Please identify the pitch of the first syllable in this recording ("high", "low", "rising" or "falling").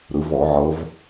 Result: rising